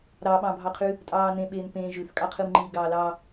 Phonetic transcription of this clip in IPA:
ɾɑɓɑ̃bʱɑqʰʉ | tʼɑːnẽ ɓeːnpẽ ʒʉθkʼɑqʰɯm ŋ͡ǃiːɡɑːlɑ

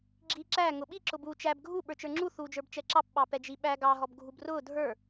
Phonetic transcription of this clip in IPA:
ɡ͡ǁiːǁæ ŋʊɓi ǁʊbuːt͡ʃæb ɡʱu ɓə˞t͡ʃə˞ŋ͡ǁu θuːd͡ʒə˞bt͡ʃɛǁɑp ɓɑpɛd͡ʒiɓæ ɡɑ ɦɔbɡʱubrʊː dʱə˞

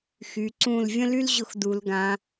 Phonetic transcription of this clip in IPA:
xy˩˧ǀũ˧˩l vʲə̃˥ly˥l ʑʊ˧xdu˩˧lɡã˩˧

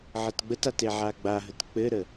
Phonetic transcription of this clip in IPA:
ʕətɡ͡bətat eʕaɡ͡baɦət k͡pɘɾə

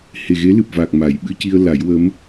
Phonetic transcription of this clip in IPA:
he˨˩ɣe˧˥lɨ˨˩p̚vaː˨˩k̚ ma˨˩˦j ɓɨ˧ci˧ə̯ la˨˩˦jwə˧˥m

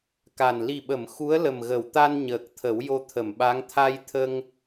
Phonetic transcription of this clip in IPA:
ka˨˩n li˨˩ɓə˨˩˨m xu˧˥ə̯lə˨˩mɣə˨˩˨w t̪a˧n ɲəː˨˩k̚t̪ʰə˨˩˦w jo˧t̪ʰə˨˩˨mɓa˧˥ŋ t̪ʰa˧jt̪ʰə˧ŋ

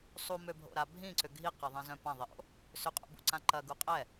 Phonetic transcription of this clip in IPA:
sˤumøbʱo̰ɾa bʱĩǀʏ ɡʱiqɐðˤĩzœ̃ pãðˤiʔo̰ | sʏqʼṵbṵǀã ǃɐɡu qʼɛ

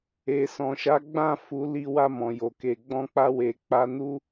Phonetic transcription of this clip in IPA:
e˨sɔ̃˨ʃa˨˦ɡ͡bã˦˨ fu˨˦li˧ wa˧mɔ̃˨jo˨ke˨ ɡ͡bɔ̃˧k͡pa˧we˨ k͡pa˧nu˦

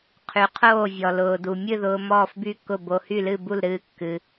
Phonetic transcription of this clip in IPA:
qʰy˧qʰoː˥˨ vʲɔ˧lʊː˧du˧ mʲɨ˥˨ðʊː˧ mɔː˥˨fby˥˨kʊ˥˨ bo˧hy˥˨lɨ˥˨ bu˥˨lɾɨː˥˨kːɨ˧

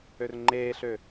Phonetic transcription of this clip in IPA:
ørŋ͡ǃeːɬø

